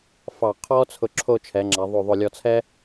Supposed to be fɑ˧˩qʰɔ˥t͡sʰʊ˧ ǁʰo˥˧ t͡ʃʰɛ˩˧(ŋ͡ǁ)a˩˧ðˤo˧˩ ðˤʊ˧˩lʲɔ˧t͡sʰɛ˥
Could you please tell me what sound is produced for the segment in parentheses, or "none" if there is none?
ŋ͡ǁ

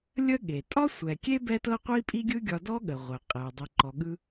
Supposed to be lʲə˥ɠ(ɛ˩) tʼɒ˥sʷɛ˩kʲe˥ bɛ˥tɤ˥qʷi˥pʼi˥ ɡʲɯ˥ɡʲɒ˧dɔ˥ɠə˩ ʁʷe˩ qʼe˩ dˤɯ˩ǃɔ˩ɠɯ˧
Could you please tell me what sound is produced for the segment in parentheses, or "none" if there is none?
e˩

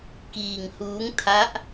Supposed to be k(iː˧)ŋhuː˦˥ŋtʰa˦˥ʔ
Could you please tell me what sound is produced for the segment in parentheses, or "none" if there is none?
iː˧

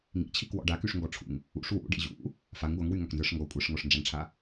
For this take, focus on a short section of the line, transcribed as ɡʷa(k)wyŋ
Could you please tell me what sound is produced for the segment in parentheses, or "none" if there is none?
ŋ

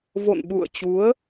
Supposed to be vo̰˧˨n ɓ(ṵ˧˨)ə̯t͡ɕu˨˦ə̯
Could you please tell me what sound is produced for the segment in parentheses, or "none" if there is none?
ṵ˧˨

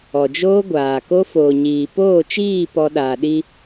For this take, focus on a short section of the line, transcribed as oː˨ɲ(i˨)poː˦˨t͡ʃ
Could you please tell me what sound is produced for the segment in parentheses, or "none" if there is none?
iː˨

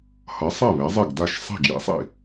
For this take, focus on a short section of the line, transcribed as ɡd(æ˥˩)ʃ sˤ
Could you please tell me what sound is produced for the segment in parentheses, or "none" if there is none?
a˥˩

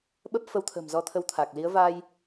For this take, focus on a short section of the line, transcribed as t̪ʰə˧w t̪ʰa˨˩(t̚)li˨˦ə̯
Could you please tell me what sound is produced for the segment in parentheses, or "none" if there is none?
k̚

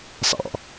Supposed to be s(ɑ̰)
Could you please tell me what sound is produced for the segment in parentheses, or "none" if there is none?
ɑ̰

